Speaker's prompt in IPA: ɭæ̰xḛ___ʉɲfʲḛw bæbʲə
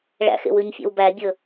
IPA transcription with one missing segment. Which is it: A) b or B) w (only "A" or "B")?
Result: B